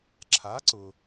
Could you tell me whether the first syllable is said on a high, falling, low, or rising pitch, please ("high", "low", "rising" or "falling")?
rising